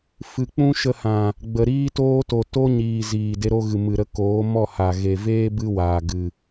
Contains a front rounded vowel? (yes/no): no